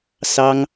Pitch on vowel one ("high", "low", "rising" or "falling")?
high